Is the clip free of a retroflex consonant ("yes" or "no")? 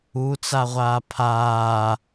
yes